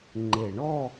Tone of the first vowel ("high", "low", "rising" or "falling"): low